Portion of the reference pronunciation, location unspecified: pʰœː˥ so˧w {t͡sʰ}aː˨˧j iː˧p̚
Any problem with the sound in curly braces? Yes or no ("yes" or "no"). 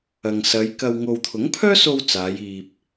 yes